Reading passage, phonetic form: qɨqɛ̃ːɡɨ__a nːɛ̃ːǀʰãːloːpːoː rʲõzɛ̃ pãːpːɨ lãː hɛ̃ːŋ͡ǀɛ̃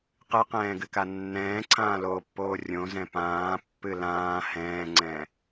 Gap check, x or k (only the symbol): k